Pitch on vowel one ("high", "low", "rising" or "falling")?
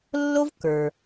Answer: high